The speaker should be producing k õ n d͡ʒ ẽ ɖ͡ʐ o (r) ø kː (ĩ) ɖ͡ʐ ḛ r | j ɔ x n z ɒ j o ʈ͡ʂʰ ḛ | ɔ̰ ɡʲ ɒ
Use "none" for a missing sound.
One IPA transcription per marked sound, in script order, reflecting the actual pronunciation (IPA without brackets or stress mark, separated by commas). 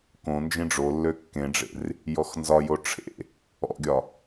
lː, ẽ